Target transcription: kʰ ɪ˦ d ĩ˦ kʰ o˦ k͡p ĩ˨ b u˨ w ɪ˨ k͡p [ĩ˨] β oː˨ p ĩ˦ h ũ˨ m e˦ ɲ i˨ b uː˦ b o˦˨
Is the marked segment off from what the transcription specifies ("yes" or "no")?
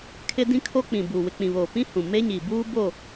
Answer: no